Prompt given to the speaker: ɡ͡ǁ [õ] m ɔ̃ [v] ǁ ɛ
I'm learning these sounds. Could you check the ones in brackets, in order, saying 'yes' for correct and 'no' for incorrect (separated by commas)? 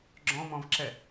no, yes